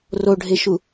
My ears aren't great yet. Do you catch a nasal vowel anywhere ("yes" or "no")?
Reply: no